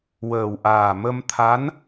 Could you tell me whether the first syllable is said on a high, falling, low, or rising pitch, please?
low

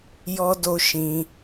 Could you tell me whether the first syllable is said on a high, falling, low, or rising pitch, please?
high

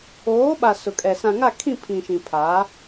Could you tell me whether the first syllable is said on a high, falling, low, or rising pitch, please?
rising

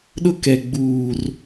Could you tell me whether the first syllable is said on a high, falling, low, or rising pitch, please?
high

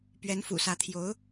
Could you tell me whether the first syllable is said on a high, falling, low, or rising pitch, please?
rising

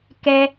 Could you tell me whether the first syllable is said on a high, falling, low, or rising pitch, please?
high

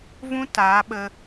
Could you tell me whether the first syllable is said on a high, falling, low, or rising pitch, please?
high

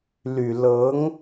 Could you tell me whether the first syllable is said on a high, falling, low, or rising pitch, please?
low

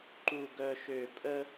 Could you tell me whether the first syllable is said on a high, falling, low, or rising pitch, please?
falling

